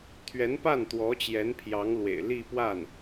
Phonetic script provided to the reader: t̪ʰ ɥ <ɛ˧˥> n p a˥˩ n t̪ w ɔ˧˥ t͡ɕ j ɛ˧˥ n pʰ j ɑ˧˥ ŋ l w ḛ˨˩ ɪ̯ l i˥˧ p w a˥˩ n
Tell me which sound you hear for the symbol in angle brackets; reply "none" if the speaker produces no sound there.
ɛ˧˥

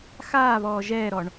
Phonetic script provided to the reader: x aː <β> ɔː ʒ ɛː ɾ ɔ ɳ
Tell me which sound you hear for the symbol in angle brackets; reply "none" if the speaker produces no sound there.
β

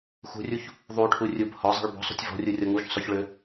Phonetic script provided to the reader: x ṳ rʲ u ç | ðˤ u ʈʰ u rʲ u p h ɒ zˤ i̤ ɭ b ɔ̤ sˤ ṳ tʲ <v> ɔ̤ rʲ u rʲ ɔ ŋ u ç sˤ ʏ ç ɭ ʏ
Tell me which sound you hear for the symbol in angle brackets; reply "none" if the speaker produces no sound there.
v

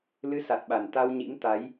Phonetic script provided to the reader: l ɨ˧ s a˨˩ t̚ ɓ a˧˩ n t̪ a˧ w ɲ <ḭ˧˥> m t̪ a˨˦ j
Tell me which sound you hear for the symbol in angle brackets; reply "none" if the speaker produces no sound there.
ḭ˧˥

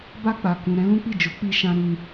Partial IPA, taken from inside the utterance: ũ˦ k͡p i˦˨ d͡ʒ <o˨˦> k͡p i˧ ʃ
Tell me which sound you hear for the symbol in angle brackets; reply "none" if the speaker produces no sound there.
o˨˦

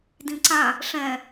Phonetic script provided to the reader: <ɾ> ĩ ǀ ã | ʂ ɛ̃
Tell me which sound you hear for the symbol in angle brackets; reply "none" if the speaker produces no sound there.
d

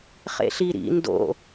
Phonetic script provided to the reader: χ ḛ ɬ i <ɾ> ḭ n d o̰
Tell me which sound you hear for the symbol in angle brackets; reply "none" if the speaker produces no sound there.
ɾ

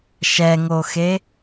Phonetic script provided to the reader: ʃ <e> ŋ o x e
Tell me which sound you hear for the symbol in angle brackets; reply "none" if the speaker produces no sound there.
ɛ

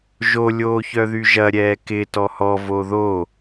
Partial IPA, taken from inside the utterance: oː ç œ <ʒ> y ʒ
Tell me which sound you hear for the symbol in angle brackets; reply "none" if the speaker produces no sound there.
ð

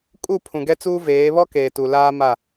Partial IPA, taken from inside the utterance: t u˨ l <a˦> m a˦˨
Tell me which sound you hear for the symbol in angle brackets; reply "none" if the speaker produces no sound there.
aː˦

